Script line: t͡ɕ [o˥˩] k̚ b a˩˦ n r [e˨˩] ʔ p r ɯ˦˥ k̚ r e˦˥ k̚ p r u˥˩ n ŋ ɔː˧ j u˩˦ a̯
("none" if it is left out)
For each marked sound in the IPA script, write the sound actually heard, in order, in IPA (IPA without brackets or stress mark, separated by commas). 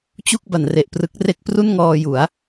u˥˩, e˨˩